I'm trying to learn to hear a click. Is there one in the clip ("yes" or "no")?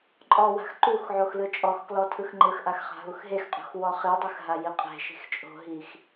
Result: yes